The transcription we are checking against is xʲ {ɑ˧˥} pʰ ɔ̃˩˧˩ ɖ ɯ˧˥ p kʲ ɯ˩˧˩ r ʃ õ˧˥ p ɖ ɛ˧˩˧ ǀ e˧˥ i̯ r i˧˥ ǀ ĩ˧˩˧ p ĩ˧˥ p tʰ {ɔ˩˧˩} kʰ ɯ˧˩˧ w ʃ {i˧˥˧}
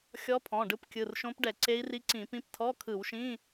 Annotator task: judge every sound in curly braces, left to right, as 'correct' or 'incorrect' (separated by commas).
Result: incorrect, incorrect, incorrect